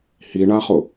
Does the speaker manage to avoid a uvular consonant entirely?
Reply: no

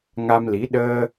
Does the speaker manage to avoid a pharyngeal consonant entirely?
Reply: yes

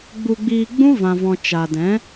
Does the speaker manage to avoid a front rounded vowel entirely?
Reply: yes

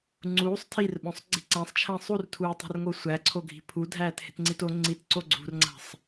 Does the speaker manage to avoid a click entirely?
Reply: no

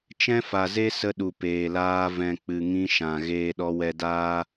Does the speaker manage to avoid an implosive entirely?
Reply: no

